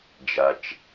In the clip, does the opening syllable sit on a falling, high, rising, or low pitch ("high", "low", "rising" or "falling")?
low